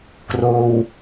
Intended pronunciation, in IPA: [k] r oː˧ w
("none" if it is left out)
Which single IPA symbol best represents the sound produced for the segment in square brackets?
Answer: k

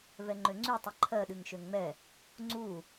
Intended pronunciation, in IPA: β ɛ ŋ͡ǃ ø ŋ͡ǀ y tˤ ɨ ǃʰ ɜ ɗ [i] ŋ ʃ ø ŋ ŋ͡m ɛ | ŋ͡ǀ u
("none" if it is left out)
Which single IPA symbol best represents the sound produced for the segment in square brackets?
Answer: ɨ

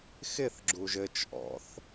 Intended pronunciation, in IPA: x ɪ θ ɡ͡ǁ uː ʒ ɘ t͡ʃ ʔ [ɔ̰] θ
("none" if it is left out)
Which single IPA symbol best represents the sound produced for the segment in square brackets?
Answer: ɔ̰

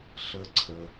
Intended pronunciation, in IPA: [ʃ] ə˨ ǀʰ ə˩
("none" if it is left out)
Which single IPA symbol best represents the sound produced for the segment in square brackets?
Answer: ɬ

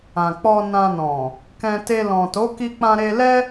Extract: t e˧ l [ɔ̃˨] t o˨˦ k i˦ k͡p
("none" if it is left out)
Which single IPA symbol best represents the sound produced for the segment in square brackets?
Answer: ɔ̃˨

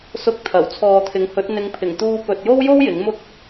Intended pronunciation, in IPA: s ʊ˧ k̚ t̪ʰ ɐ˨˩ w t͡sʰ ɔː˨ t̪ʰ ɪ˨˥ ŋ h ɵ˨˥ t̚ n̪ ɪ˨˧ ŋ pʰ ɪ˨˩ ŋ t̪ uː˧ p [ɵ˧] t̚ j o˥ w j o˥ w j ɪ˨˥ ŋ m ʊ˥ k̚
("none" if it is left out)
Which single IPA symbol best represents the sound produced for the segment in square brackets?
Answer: ɵ˨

